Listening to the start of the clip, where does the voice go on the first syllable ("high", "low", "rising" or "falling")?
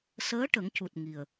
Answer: rising